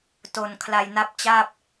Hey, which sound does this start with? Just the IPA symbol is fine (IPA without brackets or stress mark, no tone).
t